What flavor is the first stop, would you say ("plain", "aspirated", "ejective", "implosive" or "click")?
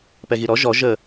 plain